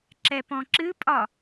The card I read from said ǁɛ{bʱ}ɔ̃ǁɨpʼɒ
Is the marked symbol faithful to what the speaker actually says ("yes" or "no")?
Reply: no